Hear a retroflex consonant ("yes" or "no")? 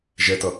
no